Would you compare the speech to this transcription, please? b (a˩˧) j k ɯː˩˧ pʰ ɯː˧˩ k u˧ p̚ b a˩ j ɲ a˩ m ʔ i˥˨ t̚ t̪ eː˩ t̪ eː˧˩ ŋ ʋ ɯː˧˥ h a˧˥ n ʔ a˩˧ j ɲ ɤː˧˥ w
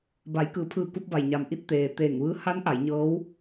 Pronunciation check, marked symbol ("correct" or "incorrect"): correct